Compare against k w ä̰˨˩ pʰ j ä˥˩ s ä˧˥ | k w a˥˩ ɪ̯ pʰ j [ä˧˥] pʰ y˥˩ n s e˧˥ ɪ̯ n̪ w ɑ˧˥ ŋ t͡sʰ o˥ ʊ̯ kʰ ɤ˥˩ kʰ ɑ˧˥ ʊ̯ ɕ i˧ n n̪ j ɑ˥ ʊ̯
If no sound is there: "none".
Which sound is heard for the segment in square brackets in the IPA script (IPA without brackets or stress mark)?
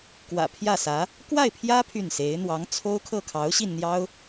ä˥